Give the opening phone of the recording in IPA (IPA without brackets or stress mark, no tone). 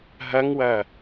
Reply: ɦ